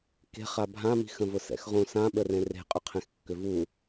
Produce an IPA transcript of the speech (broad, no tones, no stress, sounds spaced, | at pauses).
k e̤ χ a bʱ ã m i̤ x ə̃ v ʊ s ɛ̰ x ʁ ũ s ã ɓ ə r ẽ r e̤ qʼ ʏ qʰ ẽ x kː ʏ v u